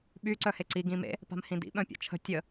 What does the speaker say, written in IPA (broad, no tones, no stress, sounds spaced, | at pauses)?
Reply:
ɓ y ǀ œ h e ǀ i ɡ ĩ m ḛ | p a̤ m h ĩ d ḭ ɓ œ̃ pʲ ɔ̰ t͡ʃʰ ə̤ tʲ ə